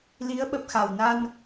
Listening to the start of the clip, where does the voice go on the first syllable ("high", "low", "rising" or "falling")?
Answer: rising